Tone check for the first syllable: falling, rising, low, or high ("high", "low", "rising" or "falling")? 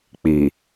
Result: low